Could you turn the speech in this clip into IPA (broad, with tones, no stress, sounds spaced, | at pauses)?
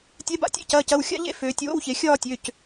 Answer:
tʲ ɛ˨˥ b a̰˧˥˧ tʲ ḛ˥˧ c ɐː˩˧˩ c ɐ˩˧˩ w xʲ a̰˥˧ ʎ ḛ˥˧ f øː˩˧ tʲ w o̰˧˥˧ w ç e˩˧ xʲ ɒː˥˧ tʲ ø˩˧˩ c